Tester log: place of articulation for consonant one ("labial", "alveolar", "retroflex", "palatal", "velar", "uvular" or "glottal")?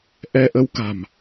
glottal